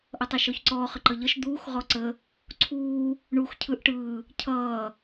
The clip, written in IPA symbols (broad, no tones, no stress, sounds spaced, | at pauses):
ʔ ʌ tˤ əː ʃ ɔ ç ǀ ɔː χ ə ǃ ʌ ʎ ʌ ʃ d̪ uː x ʁ ɔ ǀ ə | ǀʰ uː | ɳ u x cʰ ɯ ʔ ʈ ɯː | cʰ ʌː